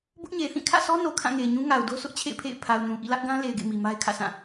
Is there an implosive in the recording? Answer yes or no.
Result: no